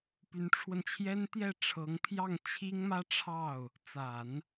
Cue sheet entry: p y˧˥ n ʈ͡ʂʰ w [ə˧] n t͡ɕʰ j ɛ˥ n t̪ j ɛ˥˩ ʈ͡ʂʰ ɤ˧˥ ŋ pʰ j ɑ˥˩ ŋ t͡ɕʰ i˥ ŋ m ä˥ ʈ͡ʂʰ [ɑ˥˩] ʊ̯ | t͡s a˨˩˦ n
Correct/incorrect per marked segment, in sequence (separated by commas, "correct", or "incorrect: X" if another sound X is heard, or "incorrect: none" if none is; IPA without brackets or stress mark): correct, correct